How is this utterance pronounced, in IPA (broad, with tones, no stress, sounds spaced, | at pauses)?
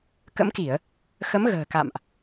k ə̰˧˥ m k i˧˩˨ ə̯ | x ə˨˦ m ɣ ə̤ː˨˩ k a̰˧˨ m ʔ